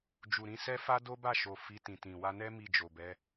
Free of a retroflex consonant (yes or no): yes